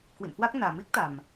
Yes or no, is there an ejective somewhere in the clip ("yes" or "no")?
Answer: no